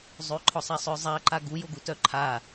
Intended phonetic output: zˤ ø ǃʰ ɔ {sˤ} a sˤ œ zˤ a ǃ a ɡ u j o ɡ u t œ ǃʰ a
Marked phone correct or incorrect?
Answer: correct